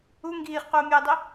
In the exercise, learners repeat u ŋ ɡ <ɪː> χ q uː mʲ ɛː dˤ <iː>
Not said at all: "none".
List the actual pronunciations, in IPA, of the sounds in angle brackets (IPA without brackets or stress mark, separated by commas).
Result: iː, i